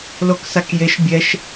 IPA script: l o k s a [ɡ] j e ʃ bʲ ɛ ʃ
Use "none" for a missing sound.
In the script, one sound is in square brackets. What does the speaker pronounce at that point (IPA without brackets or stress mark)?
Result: k